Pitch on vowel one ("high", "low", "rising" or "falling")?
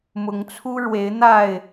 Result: rising